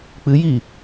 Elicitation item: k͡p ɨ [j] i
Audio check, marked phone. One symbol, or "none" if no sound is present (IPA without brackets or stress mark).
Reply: j